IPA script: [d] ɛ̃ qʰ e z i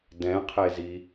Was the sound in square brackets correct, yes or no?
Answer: yes